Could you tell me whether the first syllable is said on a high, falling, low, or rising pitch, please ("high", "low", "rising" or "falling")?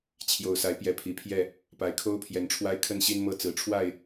low